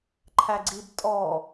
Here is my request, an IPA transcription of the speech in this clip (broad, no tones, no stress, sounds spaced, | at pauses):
ǃʰ æ ɡ͡ǀ i b tʼ ɔ